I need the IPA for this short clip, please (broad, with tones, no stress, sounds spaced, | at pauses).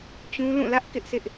t͡ɕ ũ˦ l ũ˦˨ l ä˦ ʔ k ɪ˦ ʔ sʰ ɪ˦ ʔ